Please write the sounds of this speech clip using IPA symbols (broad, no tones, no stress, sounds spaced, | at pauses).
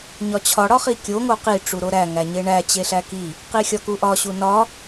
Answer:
ɲ ɒ t͡ɕʰ ɒ ɽ ɒ χ i kʲ o ŋ o q i ʈ͡ʂ u ɾ o ɾ æ ŋ æ ɲ e ɳ æ t͡ɕ e ɬ æ k i | q i xʲ ɒ k u ʔ ɒ ɕ u n ɒ